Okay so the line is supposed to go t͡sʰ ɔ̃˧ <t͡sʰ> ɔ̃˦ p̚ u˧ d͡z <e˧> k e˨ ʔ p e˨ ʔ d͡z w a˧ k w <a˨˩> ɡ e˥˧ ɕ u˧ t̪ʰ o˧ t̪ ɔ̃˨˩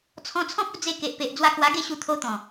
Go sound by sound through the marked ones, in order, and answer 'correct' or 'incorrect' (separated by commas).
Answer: correct, correct, incorrect